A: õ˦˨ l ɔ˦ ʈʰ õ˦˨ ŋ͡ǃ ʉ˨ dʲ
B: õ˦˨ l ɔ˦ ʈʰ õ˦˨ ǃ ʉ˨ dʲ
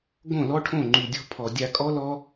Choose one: A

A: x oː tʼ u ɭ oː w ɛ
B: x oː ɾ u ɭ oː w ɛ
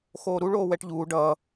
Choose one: B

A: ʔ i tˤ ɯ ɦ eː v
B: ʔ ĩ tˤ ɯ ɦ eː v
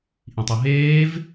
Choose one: B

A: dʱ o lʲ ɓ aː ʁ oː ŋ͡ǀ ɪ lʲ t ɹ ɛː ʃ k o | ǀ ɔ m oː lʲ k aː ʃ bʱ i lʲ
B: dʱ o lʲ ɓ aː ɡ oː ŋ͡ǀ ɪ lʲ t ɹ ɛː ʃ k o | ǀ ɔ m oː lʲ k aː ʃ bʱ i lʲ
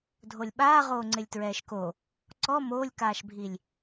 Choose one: A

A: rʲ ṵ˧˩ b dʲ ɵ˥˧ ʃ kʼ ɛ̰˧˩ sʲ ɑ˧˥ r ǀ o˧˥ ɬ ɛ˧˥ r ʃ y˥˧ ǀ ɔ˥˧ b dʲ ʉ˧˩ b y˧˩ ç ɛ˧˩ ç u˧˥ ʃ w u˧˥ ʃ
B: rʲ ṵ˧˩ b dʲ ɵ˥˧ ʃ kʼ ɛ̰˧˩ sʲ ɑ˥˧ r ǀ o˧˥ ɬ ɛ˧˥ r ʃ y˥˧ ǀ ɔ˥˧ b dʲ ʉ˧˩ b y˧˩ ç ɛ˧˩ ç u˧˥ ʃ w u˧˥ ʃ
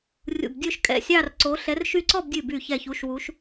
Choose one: B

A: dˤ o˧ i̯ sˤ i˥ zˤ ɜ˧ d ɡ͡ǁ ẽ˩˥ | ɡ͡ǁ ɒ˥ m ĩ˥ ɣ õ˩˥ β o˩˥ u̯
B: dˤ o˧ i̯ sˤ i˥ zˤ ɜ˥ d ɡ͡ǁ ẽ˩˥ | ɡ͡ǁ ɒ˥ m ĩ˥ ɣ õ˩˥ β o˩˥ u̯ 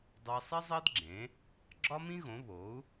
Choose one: B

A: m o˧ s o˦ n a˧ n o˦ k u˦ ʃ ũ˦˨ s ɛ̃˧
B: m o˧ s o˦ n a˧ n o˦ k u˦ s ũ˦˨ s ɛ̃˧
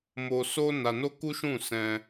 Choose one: A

